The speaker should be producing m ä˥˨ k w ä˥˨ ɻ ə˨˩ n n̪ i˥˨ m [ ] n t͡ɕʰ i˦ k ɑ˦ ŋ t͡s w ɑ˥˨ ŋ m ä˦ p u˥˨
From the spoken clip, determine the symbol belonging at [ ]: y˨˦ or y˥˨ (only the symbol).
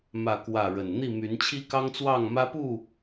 y˨˦